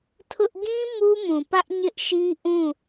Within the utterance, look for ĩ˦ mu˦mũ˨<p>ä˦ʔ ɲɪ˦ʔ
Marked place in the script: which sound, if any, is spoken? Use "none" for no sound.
p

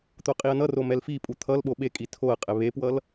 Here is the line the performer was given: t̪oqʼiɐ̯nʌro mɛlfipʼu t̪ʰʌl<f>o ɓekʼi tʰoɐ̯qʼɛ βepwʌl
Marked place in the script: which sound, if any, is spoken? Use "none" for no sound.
ɓ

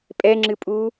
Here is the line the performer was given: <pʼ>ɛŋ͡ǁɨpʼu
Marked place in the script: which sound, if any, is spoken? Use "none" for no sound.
pʼ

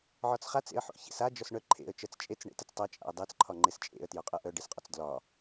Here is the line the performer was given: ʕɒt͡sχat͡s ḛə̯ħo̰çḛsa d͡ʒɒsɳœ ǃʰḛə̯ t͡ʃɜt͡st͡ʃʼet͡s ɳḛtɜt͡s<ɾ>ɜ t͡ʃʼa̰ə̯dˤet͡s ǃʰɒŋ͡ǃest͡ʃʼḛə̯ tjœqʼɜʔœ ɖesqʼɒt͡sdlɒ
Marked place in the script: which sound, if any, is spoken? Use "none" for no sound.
tˤ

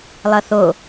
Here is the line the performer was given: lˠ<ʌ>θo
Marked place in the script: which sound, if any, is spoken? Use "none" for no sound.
ʌ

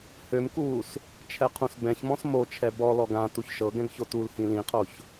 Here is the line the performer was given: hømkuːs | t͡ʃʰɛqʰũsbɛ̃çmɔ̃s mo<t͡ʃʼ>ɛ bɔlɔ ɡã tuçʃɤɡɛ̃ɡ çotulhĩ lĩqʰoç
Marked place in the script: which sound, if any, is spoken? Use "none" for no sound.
t͡ʃʰ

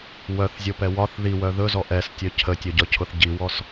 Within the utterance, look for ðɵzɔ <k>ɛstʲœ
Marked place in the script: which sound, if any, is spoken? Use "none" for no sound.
ʔ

